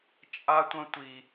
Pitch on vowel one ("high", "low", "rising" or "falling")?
high